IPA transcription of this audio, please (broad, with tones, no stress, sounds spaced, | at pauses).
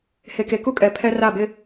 h e˨ k e˨ k u˦ kʼ ɛ˨ pʰ ɛ˦ r a˦˨ b ɪ˦